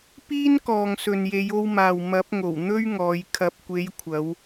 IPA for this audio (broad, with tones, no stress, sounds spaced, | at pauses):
p iː˥ n k ɔː˨ ŋ s ɵ˨ n j e˨˧ j o˧ w m aː˨ w m ɐ˨˥ p̚ ŋ o˨˩ w n̪ ɵ˥ ɥ ŋ ɔː˨˧ j kʰ ɐ˨ p̚ kʷ e˨˧ j kʷʰ ɐ˨˧ w